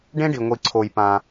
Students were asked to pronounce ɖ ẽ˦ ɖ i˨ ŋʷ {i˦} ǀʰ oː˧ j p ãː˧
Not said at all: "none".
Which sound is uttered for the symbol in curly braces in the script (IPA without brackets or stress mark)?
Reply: i˧